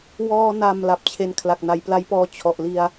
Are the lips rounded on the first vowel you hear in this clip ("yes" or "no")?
yes